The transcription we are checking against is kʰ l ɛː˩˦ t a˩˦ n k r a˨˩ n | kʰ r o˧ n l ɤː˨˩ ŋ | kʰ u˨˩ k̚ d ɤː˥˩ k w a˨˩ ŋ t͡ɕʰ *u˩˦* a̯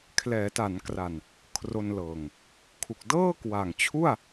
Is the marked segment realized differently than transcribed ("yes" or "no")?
yes